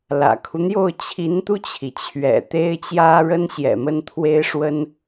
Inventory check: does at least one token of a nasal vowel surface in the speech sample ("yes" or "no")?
no